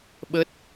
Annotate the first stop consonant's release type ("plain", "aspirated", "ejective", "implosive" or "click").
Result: implosive